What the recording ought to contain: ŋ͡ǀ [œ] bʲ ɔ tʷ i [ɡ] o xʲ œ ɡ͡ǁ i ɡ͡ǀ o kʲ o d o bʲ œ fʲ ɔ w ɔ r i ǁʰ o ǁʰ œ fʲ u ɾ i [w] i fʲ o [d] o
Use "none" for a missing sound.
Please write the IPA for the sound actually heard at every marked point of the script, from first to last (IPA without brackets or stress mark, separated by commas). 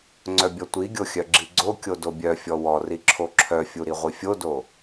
œ, ɡʲ, ʁʷ, d